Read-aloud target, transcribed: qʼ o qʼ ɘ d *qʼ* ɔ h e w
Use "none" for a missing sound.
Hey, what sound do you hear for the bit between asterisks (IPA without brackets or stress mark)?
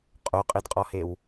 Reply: qʼ